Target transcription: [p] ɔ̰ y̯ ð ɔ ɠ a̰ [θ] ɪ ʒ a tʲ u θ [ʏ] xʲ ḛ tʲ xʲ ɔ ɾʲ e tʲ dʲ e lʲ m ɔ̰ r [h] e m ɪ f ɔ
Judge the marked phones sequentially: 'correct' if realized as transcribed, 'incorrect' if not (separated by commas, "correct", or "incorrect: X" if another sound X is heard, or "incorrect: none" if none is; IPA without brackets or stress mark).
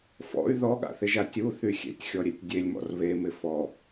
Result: incorrect: f, correct, incorrect: y, incorrect: β